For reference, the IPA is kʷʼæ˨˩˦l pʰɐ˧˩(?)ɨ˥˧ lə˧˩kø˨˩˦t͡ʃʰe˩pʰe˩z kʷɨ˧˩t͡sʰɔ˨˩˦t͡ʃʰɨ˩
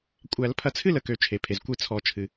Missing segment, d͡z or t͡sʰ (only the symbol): t͡sʰ